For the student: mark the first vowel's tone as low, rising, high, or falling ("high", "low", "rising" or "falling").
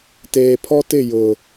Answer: low